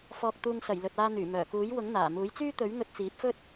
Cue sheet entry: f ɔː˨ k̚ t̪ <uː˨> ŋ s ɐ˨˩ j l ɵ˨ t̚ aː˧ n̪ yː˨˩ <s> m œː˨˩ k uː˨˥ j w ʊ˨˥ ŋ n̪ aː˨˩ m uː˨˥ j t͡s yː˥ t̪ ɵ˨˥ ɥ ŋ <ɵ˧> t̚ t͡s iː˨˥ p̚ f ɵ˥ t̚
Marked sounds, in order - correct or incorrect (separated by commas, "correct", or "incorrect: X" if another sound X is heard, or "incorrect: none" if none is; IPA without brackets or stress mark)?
correct, incorrect: none, correct